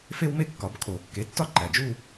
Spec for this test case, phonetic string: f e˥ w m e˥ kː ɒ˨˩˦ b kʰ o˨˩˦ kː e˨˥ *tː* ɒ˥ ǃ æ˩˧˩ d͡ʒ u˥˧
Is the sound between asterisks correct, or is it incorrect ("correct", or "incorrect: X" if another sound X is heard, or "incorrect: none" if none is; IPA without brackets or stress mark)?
correct